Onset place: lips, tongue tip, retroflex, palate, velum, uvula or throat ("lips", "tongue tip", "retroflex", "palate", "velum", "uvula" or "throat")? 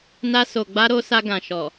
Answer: tongue tip